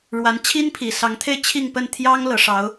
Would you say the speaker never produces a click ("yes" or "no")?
yes